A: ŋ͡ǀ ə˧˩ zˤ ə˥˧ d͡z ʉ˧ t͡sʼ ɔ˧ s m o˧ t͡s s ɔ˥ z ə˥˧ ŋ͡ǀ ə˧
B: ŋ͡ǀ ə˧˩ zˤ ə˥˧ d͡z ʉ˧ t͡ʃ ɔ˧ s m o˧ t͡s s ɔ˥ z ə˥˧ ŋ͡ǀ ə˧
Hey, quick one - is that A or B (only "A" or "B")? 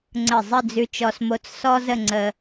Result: B